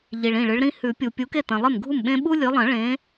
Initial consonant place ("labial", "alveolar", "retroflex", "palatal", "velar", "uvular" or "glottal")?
palatal